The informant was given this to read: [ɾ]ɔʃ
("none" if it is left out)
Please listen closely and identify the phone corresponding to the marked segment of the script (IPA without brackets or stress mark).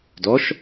d